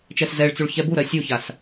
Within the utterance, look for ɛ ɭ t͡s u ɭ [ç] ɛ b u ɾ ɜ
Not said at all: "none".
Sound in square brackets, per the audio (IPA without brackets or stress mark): ç